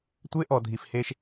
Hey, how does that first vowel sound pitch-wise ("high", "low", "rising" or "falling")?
high